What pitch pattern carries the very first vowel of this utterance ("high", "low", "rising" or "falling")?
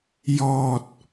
low